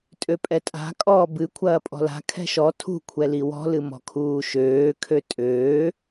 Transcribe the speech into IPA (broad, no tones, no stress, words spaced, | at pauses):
tʼøpʼɛtʼa̤ kʼɔːbɨ kʷʰɐːpʼɔ̤la̤ kʰɛ̤ʃɔ tʰṳ kʷʰɛliwɔ̤ lɨmɔ̤kʰuːʃøː kʰøtʼøː